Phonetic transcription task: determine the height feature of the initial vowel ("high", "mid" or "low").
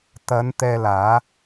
low